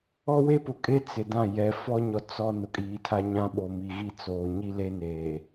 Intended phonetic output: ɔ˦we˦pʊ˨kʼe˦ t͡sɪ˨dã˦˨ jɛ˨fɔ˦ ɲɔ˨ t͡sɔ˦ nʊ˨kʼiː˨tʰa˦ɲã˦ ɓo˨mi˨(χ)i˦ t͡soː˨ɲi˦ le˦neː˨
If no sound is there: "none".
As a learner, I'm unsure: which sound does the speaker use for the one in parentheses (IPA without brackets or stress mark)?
ɣ